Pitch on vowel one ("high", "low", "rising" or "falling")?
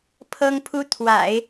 high